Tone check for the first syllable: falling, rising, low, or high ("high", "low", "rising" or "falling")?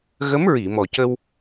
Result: rising